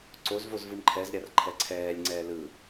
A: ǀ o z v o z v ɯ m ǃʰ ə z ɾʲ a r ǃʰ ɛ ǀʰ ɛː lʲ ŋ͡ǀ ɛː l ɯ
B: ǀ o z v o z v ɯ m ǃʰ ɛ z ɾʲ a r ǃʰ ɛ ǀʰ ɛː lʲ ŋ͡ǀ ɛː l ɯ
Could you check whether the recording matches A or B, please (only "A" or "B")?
B